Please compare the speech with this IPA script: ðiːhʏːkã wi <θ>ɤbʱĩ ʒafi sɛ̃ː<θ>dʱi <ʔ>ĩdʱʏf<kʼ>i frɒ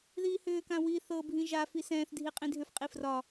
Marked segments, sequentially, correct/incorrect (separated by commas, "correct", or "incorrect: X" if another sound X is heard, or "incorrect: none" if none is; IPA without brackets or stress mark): correct, correct, incorrect: qʼ, incorrect: qʼ